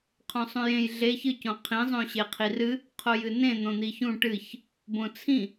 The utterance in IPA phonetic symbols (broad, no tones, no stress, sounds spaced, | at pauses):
qʰ õ sˤ ũ j ẽ j ɮ e ç ɨ c õ qʰ ĩ zˤ õ ɕ e qʰ i r ɨ | qʰ o j ɨ n ẽ n̪ õ n̪ i ç ũ ʈ ɨ ç | b õ t͡sʰ ĩ